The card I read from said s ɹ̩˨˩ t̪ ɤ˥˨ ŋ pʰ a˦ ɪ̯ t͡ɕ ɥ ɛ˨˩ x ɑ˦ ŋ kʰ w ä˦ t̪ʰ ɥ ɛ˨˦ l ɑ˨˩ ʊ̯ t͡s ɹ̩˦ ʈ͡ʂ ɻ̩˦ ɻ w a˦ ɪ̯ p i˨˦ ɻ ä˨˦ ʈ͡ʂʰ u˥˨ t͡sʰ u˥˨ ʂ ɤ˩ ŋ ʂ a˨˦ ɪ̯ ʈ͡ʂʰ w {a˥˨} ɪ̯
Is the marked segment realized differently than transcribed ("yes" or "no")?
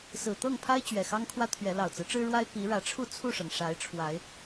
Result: yes